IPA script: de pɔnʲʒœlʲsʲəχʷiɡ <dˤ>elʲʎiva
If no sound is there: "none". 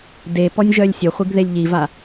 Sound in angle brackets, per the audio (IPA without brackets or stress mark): ð